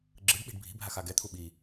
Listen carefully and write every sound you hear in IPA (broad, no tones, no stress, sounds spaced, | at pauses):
ɡ͡ǁ ɯ ɖ ɓ i̤ ɖ bʱ i̤ bʱ a x a ɡ ɛ t̪ʰ u ɓ i